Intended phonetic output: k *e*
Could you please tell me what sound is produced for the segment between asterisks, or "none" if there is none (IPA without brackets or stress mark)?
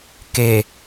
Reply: e